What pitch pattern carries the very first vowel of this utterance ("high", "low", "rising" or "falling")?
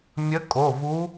rising